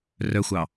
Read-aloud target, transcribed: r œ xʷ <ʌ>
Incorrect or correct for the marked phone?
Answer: incorrect: ɑ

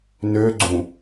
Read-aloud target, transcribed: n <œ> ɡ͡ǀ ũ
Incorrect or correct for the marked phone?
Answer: incorrect: ø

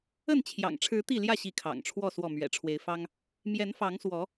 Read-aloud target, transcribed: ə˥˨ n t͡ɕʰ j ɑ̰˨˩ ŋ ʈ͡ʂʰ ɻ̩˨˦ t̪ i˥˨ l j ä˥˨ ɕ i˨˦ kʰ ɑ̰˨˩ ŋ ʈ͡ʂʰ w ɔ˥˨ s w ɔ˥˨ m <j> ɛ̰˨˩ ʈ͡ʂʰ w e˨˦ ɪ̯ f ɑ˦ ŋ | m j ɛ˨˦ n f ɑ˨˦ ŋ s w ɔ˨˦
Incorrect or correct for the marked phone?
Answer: incorrect: ɥ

